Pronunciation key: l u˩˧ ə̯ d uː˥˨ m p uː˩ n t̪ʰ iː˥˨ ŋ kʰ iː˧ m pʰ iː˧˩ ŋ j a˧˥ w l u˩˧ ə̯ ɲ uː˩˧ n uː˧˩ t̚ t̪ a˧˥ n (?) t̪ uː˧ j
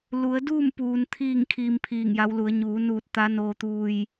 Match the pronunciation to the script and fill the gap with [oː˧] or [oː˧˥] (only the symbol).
oː˧